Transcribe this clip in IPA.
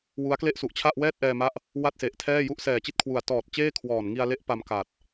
w u˦˥ a̯ k l e˥˩ ʔ s u˨˩ ʔ t͡ɕʰ a˥˩ ʔ w ɛː˥˩ t̚ ʔ ɛː˧ m a˥˩ ʔ | w a˥˩ t̚ s e˨˩ ʔ tʰ ɛː˥˩ j u˥˩ ʔ s ɛː˨˩ t͡ɕ i˥˩ t̚ kʰ w u˨˩ a̯ t ɔː˨˩ t̚ t͡ɕ eː˥˩ kʰ w ɔː˨˩ n ŋ i˧ a̯ l e˦˥ ʔ p a˧ m k a˨˩ t̚

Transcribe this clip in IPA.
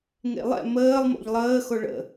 ŋ ḛ lˠ ɛ̰ m əː lˠ m o̰ ʎ lˠ əː x o ɭ ə̰

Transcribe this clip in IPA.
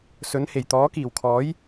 s ɵ˨˥ n h e˨˩ j t̪ ɔː˨˥ k iː˨˩ w kʰ ɔː˨˥ j

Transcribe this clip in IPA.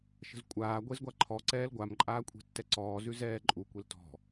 ʃ ə̤ z kʷʼ aː ɡʷ e z ɡʷ a ǃʰ ɔ ǀ ɛː l ɡʷ a m ǃʼ aː kʷʼ e̤ tː ɛ ǀ ɔː z ʉ z ɛː ǃʼ u kʷ e l t ɔ̤

